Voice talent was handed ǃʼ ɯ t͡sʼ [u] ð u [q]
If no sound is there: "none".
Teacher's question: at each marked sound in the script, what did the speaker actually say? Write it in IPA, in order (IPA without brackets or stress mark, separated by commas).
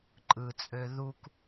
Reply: ø, k